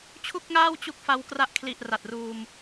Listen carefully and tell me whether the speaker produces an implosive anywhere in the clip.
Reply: no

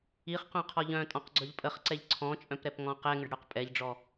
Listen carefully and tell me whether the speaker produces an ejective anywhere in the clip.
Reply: yes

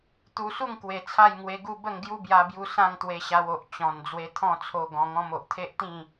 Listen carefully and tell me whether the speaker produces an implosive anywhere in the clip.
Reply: no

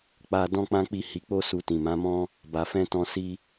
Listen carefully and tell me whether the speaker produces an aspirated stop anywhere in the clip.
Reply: no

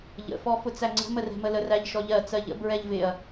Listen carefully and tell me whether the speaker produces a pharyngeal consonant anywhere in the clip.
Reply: no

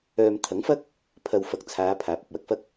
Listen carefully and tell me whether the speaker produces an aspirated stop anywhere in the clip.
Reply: yes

